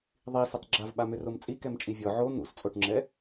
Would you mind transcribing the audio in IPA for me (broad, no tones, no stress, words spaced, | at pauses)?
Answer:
ðˤisʏtˤ ɡ͡ǁav ɓamʏromt͡sʼi kɛmt͡ʃʼivʲɔ ʕo n̪ṵst͡sʼoʈŋ͡ǁɛ